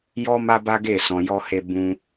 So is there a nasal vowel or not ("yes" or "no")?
yes